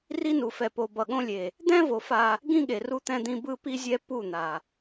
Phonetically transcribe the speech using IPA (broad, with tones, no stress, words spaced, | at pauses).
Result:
ri˦nu˨fɛ˨ po˨ bʌ˨ɠõ˦lʲe˨ | d̪ɛ̃˦vo˨ fa˦ | ɡĩ˦ɠe˨ ru˦t̪ɛ̃˦d̪ĩ˦ bɯ˦ pi˦zʲɛ˦ pu˦˨n̪a˨